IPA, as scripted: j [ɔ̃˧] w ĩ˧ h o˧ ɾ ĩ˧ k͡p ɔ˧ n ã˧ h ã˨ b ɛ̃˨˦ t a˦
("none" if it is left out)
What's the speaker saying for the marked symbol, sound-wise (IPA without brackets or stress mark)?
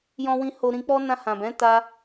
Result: ɔ̃˧